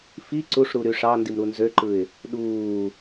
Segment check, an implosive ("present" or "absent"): present